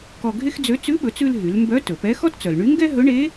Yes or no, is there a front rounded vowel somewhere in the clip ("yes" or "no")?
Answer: yes